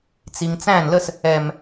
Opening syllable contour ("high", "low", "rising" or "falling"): low